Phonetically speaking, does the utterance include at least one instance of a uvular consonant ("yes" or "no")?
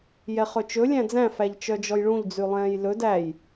yes